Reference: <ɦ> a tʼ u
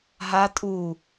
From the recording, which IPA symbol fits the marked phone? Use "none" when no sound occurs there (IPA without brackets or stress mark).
ɦ